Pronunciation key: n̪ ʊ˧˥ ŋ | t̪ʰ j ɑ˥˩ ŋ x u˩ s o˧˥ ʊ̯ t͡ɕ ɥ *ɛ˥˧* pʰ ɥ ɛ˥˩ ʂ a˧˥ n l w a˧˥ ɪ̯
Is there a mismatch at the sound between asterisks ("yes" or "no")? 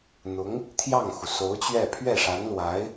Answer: no